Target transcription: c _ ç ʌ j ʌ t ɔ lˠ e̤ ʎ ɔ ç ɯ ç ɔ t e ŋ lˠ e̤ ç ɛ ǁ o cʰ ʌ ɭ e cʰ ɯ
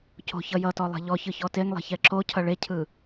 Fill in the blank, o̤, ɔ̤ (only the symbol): o̤